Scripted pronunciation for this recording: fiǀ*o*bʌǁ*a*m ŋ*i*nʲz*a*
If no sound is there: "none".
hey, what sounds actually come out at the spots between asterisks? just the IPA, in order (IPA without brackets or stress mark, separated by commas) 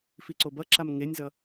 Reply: o, a, e, ʌ